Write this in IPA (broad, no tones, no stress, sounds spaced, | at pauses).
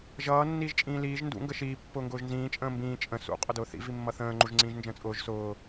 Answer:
ʒ ʌː nː iː ʒ t͡ʃʼ ĩː l iː ʒ n d ṵ ŋ ɡ ə ʃ iː pː ʊː ŋ ɡ ʊː ʒ n z ĩː t͡ʃʼ ə̃ː m b ĩː t͡ʃʼ ə̃ s ṵ qʼ ʊ d ʊː θ ḭ v i mː ʌ θ ə̃ː ŋ͡ǃ u ʒ ŋ͡ǀ ĩː ʒ n d͡ʒ ə̃ː t͡sʼ ʊː ʒ s ʊː